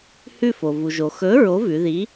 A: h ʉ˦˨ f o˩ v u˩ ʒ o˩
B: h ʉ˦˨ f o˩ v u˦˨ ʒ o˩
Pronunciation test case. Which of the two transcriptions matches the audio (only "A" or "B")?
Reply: A